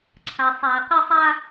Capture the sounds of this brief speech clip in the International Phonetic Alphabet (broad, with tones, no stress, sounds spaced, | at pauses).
ǀʰ a˨ sˤ a˨ ɐ̯ q ɪ˦ sˤ a˦